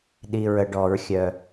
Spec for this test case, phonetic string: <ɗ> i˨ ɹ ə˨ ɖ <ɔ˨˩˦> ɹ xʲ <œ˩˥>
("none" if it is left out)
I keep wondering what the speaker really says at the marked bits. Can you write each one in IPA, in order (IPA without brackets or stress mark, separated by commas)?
ɗ, ɔ˨˩˦, œ˨